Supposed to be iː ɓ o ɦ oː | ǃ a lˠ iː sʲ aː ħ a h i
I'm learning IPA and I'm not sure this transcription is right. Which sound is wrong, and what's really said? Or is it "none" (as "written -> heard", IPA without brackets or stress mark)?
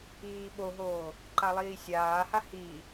ħ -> h